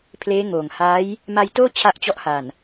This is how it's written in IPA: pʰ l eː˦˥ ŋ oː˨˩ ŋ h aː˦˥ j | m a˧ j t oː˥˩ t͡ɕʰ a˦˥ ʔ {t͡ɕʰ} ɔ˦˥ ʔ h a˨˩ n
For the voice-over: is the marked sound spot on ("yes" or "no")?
no